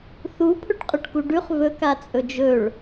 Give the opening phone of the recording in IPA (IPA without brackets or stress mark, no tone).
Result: θ